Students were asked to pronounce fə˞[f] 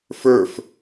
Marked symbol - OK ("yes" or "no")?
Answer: yes